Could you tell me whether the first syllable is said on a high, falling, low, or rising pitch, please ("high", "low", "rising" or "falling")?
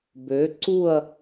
rising